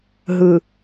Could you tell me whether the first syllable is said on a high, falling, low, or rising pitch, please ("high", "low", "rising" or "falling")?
low